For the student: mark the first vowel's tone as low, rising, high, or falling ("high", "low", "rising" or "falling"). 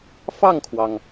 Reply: falling